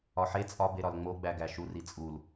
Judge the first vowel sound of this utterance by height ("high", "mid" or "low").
low